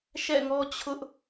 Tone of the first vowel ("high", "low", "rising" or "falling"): falling